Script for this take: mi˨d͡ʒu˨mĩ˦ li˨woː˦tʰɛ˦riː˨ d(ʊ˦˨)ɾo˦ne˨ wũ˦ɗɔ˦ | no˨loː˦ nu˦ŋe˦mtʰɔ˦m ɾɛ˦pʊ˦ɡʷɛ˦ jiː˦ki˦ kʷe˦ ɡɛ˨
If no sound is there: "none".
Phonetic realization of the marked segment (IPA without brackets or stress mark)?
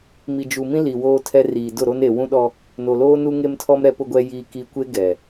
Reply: ʊ˦˨